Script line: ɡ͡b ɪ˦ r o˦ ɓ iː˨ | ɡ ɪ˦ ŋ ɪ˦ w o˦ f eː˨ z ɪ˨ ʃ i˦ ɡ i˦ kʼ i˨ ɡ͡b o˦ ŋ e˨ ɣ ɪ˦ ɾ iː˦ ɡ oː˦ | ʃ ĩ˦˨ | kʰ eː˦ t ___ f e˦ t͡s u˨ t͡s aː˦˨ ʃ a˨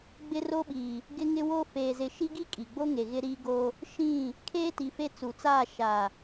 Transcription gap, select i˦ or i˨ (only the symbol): i˨